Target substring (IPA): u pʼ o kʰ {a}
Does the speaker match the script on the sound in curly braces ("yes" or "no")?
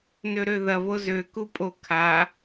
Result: yes